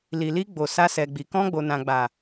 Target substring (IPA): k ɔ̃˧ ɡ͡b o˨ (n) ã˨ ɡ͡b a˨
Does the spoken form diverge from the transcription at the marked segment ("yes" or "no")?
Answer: no